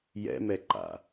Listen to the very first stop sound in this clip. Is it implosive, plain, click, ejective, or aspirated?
click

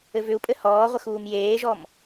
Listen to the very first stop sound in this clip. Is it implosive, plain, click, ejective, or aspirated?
ejective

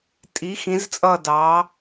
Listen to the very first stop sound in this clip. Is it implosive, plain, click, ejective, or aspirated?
ejective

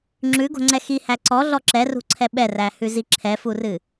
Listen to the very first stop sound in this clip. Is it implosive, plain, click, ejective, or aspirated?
click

